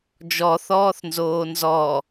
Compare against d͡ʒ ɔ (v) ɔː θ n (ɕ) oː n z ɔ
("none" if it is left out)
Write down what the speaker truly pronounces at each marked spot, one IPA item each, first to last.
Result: θ, z

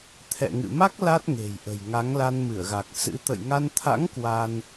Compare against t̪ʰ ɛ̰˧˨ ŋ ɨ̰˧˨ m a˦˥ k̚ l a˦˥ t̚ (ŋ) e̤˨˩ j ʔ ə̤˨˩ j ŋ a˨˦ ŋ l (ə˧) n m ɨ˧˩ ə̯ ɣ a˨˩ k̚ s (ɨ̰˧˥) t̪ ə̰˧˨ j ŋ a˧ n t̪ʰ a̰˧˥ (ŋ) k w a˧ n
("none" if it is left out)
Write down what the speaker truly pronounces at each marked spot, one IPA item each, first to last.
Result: ŋ, a˧, ɨ̰˧˥, ŋ

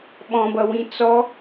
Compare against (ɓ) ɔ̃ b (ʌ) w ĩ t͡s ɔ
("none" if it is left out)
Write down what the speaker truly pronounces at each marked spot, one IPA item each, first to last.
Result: ɓ, ʌ

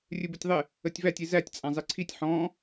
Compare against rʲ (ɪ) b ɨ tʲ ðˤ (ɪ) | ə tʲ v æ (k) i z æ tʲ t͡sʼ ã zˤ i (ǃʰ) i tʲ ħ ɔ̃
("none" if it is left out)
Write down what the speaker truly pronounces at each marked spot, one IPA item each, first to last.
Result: ɨ, ɪ, tʲ, ǀʰ

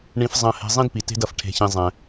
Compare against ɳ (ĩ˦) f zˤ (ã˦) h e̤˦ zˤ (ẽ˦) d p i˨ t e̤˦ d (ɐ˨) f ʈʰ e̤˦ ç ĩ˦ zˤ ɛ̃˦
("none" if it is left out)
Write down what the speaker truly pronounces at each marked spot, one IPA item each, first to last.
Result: ĩ˦, ɐ̃˦, ĩ˦, ɐ˨

